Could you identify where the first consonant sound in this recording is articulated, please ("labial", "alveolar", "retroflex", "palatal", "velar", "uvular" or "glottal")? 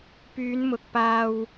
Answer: labial